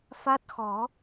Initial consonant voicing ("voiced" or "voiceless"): voiceless